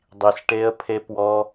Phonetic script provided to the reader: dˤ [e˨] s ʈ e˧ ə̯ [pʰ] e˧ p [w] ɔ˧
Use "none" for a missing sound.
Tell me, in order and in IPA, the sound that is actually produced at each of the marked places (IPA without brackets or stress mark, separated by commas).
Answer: i˨, pʰ, w